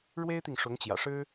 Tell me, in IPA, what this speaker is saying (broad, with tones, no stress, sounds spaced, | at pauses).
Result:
ɻ w e˥ ɪ̯ t̪ i˨ ŋ ʂ ʊ˧˥ ŋ t͡ɕ j ä̰˨˩ ʂ ɻ̩˥